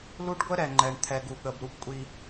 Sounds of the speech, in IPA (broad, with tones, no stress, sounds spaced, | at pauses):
l u˦ ɖ ɡʷ ə˦ ɾ ɛ˨ ŋ͡ǃ ɛ˨ ɳ t̪ʰ ɛ˨ ɡ u˨ ɠ ə˨ b ɾ u˦ p kʷʼ i˦